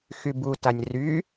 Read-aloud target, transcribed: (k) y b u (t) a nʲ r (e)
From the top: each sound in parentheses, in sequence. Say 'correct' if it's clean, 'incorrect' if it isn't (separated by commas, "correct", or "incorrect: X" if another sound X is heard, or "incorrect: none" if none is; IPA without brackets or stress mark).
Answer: incorrect: x, correct, incorrect: y